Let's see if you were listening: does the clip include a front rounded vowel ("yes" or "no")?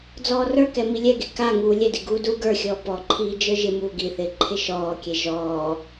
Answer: no